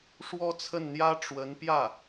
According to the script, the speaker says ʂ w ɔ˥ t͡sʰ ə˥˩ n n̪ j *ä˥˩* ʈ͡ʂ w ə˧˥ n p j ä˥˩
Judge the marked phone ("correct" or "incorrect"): incorrect